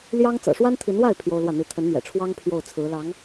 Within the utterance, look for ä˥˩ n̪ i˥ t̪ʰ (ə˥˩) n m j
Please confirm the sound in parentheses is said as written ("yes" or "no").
no